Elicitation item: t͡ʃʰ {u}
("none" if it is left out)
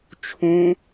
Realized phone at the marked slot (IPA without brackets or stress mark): ũ